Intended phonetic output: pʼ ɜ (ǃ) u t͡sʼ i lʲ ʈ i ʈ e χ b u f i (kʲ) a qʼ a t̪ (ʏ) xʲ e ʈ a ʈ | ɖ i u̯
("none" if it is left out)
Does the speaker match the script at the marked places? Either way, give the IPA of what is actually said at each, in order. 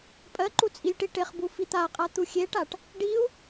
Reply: ǃ, t̪, u

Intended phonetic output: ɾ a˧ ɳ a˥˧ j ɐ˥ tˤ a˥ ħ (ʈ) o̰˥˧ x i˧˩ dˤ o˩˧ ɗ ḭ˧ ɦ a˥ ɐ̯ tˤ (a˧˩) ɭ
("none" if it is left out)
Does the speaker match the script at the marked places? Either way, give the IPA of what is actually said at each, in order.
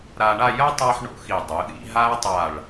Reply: ɳ, a˧˩

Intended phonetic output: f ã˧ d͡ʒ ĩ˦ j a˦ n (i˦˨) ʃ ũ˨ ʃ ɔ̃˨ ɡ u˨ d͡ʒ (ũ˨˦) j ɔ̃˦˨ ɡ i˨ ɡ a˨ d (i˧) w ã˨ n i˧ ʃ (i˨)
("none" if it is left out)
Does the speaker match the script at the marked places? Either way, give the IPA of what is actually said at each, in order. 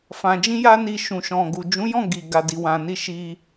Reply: i˧, ũ˨˦, i˨, i˧

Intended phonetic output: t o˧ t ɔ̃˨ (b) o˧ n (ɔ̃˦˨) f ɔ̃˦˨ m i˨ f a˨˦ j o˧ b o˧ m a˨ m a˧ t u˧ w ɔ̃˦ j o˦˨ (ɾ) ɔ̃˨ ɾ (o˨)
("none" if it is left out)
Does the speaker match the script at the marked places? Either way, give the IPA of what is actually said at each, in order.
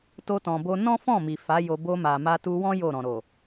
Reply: b, ɔ̃˦, ɾ, o˨

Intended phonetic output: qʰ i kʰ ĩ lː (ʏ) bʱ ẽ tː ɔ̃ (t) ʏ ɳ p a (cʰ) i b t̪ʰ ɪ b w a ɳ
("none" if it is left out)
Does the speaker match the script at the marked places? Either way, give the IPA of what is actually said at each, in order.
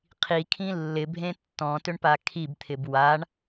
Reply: ɪ, t, kʰ

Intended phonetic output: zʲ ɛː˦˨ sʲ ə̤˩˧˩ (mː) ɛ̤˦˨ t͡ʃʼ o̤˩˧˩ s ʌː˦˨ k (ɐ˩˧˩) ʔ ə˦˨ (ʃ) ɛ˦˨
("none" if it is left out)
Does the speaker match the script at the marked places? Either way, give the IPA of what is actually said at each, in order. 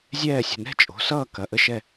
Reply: n, ɐ˩˧˩, ʃ

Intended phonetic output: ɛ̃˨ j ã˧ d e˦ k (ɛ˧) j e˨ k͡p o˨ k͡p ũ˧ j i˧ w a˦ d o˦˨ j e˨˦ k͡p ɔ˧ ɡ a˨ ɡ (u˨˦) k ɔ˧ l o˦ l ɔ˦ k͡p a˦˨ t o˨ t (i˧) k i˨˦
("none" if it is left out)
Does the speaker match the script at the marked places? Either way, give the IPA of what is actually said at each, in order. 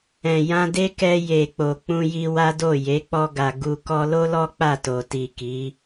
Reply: ɛ˧, u˨, i˨

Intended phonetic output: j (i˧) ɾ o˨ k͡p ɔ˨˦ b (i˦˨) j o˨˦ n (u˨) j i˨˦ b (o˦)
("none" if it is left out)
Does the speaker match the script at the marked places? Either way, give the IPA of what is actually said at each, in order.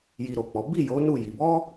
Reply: i˧, i˦˨, u˦˨, ɔ˦

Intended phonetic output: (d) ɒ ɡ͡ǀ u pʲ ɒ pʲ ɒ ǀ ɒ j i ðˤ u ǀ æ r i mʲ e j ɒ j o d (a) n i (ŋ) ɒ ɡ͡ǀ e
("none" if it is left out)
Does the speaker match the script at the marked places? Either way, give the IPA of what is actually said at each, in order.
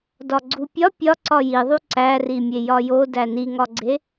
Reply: d, æ, ŋ

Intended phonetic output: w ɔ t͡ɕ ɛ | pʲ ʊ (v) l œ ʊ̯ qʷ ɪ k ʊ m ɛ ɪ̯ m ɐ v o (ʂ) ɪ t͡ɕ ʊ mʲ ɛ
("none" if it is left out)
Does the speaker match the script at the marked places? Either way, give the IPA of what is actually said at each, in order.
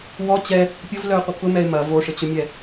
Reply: v, ʂ

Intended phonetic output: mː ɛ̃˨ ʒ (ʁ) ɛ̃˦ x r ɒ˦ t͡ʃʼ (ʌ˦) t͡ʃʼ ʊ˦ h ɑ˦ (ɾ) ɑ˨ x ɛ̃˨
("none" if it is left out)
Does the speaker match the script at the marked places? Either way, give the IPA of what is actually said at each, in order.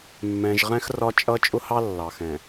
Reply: ʁ, ʌ˦, lː

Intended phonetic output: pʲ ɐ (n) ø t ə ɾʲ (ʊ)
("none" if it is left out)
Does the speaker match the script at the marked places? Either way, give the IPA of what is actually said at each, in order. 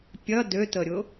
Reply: d, ʊ

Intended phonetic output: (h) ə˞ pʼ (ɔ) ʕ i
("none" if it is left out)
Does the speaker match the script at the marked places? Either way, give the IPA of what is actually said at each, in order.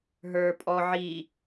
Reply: ɦ, ɔ

